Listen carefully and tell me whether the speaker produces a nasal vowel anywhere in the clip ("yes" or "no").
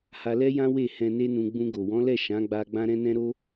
yes